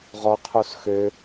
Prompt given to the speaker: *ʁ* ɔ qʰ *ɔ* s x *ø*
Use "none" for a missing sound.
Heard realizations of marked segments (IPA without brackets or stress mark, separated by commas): ʁ, o, ø